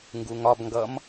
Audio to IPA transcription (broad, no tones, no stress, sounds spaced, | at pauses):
ŋ ɡ u ŋ ɒ b ŋ ɡ ʌ m